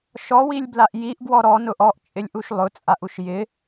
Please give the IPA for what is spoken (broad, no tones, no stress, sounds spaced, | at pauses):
ʃ ɔ w i lʲ b l a ʔ j i ʔ ɡ w ɔ ɾ ɔ n ʊ ʔ ɔ ʔ t͡ʃʼ ɪ lʲ ʔ u ʃ lˠ ʊ t͡sʼ a ʔ u ʃ j ɪ